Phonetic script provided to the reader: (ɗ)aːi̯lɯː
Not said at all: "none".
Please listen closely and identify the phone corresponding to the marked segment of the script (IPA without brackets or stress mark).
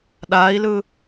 ɗ